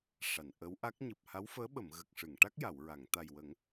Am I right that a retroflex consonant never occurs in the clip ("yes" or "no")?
no